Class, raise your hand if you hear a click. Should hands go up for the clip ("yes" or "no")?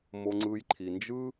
yes